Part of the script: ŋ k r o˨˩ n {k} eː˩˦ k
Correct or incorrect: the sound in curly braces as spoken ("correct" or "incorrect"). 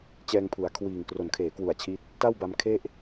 incorrect